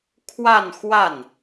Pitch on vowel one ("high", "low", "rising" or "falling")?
falling